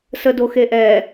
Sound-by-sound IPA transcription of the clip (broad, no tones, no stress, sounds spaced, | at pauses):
s ə d o x e ʔ ɛ